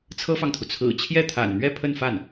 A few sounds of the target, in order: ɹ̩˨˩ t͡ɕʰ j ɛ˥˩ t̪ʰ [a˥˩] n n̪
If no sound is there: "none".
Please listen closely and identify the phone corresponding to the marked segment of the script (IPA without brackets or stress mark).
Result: a̰˨˩